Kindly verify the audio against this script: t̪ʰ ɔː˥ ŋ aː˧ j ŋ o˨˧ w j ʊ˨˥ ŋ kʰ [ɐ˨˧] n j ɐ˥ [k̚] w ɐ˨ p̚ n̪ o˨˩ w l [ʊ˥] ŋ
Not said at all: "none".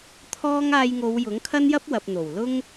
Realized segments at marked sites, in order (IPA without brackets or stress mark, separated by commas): ɐ˥, p̚, ʊ˥